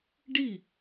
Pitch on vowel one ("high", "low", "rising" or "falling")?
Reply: falling